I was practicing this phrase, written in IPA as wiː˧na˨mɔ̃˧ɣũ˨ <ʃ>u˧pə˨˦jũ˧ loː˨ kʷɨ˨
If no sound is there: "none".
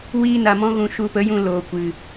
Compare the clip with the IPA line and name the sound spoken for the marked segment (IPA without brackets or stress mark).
ʃ